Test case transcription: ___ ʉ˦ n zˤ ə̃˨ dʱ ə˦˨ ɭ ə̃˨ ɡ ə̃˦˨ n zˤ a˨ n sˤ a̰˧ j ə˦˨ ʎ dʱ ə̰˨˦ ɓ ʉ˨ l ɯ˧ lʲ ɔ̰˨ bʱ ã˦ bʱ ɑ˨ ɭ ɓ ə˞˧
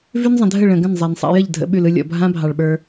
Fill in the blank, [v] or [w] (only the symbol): v